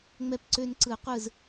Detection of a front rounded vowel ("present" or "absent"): present